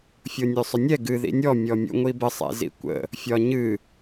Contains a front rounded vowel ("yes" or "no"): yes